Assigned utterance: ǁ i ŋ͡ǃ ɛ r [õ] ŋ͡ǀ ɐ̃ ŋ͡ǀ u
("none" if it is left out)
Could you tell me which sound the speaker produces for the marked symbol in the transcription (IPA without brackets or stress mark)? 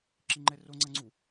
o